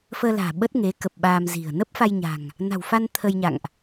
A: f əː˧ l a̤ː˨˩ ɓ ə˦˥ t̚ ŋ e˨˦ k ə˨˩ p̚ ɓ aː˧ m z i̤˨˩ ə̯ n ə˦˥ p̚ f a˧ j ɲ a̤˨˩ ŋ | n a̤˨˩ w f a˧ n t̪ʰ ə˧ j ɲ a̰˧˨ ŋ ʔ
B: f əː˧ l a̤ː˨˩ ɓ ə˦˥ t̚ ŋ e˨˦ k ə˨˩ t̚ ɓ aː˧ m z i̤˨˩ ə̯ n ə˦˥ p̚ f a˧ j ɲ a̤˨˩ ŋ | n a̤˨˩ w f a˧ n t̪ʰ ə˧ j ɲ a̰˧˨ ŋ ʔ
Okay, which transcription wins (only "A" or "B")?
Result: A